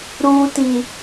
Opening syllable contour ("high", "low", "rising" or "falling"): high